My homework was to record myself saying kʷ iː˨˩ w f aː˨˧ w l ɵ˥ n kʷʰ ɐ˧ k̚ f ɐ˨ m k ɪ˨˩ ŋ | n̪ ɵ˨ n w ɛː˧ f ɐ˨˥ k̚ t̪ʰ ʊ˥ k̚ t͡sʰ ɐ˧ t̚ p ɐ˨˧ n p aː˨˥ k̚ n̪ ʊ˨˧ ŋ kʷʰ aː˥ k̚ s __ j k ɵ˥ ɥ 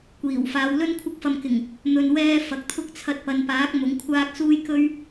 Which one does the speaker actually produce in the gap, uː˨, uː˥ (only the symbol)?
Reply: uː˥